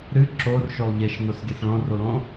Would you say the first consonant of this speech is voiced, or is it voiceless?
voiced